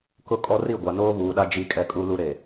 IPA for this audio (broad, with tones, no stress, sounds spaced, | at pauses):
k ʊ˦ kʼ ɔ˦ r i˦˨ ɡʷ a˨ n oː˦ β uː˨ ɗ a˦ d͡ʒ i˦ kʼ ɛ˦ kʼ u˦ l u˦ ɾ e˨